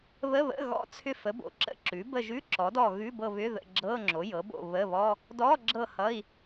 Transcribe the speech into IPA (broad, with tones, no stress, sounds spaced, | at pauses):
β ə˧˥˧ β ə̰˧˥˧ ɣ ɔ̰˧˥˧ t͡sʰ ʏ˦˨ f ə˩˥ b o̰˩˥ ǁ ə̰˦˨ ǁ ʉ˩˥ b ə˦˨ ʒ ʉ˧˥˧ ǁ ɔ˩˥ d ɔ˦˨ ɣ ʉ˧˥˧ b ɤ˦˨ β ʏ˧˥˧ ð ə̰˦˨ ɡ͡ǁ ɤ˧˥˧ ŋ͡ǁ o˩˥ j ɤ˩˥ b o̰˦˨ β ə˧˥˧ β ɔ˧˥˧ | d ɔ˧˥˧ ɡ͡ǁ ɤ˦˨ h ʌ˧˥˧ i̯